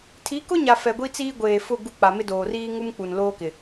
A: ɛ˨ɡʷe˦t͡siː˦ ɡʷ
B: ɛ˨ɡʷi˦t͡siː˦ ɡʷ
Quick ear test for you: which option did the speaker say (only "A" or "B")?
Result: B